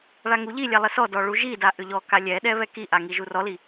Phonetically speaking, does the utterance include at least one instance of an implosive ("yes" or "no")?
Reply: yes